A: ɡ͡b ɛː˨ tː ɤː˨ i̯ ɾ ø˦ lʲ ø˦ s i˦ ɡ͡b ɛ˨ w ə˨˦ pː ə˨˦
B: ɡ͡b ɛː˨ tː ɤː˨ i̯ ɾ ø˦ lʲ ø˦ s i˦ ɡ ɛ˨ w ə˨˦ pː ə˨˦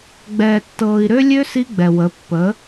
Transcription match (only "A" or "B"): A